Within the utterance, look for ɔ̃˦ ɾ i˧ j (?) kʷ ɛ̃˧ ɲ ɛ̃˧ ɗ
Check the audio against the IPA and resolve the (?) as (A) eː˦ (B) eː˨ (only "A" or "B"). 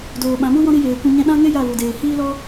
B